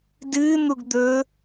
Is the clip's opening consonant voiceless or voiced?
voiced